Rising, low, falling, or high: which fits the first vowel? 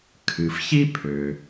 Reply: low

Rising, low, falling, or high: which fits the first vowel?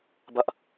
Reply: high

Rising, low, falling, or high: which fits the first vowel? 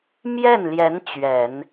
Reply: falling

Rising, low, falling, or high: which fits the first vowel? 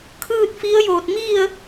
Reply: falling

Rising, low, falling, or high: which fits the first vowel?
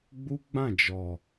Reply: high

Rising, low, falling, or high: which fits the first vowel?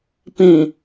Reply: low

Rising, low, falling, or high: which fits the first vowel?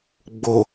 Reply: low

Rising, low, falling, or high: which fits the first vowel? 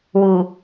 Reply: low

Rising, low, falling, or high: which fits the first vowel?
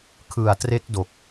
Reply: low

